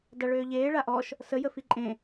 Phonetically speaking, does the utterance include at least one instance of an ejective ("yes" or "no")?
yes